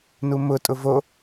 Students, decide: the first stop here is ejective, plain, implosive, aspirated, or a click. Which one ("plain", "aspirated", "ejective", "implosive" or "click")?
ejective